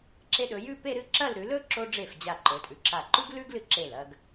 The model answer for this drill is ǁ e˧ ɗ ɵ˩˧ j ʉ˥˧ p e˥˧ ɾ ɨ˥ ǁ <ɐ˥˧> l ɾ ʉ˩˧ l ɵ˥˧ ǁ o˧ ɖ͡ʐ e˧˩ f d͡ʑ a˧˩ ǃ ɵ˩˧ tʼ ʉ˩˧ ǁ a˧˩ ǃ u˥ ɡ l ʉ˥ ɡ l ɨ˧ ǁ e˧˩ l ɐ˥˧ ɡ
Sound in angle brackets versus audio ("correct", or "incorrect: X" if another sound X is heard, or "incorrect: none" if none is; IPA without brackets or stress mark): correct